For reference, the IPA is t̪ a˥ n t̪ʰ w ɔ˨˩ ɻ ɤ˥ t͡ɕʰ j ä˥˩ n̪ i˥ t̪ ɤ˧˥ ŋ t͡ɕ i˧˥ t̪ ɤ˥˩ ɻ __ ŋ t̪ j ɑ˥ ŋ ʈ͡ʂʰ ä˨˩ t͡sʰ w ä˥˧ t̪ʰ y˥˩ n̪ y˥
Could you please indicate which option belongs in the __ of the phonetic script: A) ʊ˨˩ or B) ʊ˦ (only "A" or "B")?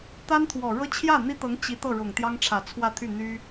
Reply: A